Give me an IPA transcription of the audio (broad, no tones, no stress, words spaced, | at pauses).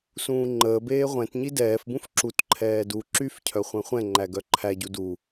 sũːŋ͡ǃəːbeː ʁʷɛ̃t ɲidɛːfbũf ǁutǃʰɛː du ǁyfcʰœ χʷɛ̃χʷɛ̃ŋ͡ǃæ ɡœǃʰæɟu du